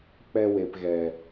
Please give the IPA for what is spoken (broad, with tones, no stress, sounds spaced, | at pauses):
k͡p ɛ˧ w e˨ p ɣ ɛ˨